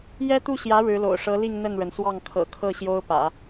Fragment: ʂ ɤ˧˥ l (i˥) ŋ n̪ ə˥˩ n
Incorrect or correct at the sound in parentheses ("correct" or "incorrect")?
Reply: incorrect